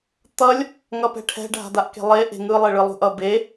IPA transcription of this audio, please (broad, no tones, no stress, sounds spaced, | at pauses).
t̪ ʌ lʲ | ŋ ʌ p ɛ̤ ʈʰ ɛ̤ ɖʱ a̤ d̪ a ʔ k e̤ lˠ e ʔ e̤ ŋ ɯ lˠ e ɭ ɯ lˠ ṳ ʔ ʌ b e